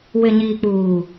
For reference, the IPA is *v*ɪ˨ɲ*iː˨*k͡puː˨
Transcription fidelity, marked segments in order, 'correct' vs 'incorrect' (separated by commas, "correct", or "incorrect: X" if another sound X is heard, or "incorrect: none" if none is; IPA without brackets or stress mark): incorrect: w, correct